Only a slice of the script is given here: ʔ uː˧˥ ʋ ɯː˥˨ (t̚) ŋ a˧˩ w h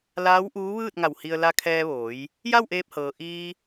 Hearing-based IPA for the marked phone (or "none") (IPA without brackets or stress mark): t̚